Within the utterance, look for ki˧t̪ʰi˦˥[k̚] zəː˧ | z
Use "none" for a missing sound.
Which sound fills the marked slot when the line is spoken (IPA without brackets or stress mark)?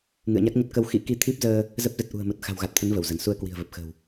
p̚